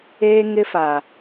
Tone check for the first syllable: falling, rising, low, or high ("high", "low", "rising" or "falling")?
high